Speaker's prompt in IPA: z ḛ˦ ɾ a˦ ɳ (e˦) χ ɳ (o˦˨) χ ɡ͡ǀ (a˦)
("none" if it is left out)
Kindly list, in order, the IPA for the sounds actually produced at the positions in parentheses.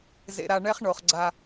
ɛ˦, o˨, a˦

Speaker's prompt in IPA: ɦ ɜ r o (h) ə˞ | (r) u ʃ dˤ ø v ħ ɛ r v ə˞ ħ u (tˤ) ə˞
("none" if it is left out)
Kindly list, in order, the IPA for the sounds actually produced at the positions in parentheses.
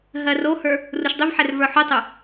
h, r, tˤ

